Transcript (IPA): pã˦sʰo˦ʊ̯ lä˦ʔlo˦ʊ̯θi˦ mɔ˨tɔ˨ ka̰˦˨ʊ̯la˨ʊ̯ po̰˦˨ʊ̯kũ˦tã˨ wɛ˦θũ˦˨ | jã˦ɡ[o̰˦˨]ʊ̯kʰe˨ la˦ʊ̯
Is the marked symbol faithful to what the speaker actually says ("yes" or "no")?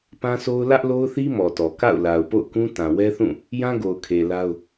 no